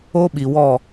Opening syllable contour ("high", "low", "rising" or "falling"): high